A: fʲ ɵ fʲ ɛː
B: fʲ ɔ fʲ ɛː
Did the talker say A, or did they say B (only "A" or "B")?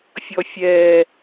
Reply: B